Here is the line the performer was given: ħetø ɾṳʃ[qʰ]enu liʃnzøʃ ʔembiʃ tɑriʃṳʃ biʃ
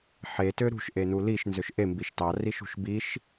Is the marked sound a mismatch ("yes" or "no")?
yes